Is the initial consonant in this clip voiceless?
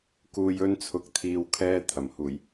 yes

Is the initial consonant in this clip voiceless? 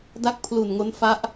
no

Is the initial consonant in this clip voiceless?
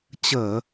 yes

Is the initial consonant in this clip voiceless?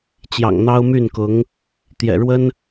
yes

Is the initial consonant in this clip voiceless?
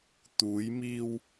yes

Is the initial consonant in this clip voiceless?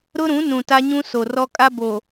no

